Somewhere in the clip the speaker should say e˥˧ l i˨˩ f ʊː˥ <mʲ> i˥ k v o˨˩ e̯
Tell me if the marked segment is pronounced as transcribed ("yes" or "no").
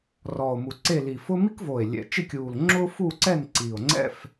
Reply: no